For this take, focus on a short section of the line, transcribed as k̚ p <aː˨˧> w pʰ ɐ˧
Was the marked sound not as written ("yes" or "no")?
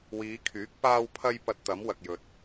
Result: yes